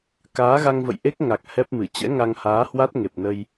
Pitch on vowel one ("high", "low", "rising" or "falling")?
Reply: rising